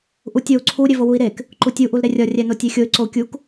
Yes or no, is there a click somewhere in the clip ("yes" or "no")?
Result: yes